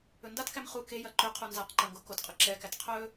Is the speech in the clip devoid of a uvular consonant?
no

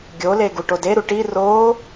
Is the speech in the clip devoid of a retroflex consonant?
no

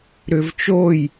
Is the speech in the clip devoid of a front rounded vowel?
no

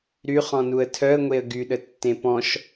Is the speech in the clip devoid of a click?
yes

